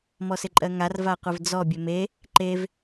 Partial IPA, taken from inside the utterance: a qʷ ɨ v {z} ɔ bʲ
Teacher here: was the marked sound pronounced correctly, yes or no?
no